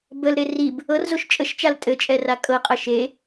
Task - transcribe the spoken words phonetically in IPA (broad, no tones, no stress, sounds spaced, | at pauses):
b ə l ɾ e r i b | ɤ r z o ʃ t͡ʃʼ ə ʃ t͡ʃ a l tʼ ɘ t͡ʃʼ ɛ r a kʼ ɤ qʼ ɐ ʃ e